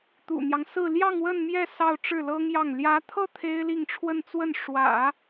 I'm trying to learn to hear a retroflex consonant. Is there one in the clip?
yes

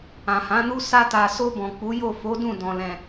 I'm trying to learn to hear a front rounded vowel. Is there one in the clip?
no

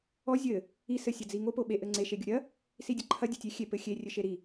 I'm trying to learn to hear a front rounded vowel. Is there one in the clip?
no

